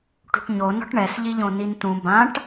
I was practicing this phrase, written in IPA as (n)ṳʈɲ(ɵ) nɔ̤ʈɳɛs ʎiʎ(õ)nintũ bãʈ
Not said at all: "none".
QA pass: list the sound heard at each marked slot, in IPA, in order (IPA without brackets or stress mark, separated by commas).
ʈ, o, õ